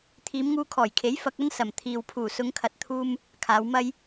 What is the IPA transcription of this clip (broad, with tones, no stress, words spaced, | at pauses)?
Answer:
t̪ʰiː˨˧mŋuː˧kʰɔː˨˩jkʰe˨˥j fɐ˧k̚ɐ˥nsɐ˨˩m t̪ʰiː˨wpʰuː˨˩ sʊ˨˧ŋkʰɐ˨˥t̚t̪ʰuː˧m | kʰaː˨˧wmɐ˥j